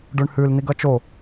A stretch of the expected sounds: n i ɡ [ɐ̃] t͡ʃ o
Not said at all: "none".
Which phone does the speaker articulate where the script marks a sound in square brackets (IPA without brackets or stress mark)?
ɐ